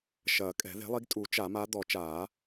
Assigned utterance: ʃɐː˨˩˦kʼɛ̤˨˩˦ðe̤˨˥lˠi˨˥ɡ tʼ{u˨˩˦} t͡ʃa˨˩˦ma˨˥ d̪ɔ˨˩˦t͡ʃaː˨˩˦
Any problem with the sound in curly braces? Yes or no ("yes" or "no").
no